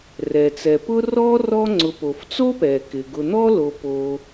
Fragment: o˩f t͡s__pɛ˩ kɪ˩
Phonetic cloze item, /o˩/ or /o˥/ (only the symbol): o˥